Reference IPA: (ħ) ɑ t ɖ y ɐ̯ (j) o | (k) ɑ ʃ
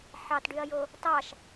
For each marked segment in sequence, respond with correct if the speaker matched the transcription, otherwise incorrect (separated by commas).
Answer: correct, correct, incorrect